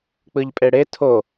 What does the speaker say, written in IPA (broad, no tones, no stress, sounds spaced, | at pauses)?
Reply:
k͡p ɯ ʎ pʼ e ɽ e tʰ o